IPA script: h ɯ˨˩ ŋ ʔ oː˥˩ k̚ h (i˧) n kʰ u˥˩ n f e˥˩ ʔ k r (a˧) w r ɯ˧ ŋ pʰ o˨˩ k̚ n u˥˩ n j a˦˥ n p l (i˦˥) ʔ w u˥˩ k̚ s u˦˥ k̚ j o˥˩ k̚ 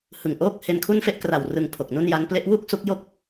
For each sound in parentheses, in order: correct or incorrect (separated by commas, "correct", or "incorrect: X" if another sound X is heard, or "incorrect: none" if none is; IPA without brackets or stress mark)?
incorrect: e˧, incorrect: a˨˩, incorrect: e˦˥